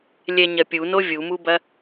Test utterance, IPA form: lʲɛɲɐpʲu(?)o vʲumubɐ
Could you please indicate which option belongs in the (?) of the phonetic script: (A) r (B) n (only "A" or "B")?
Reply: B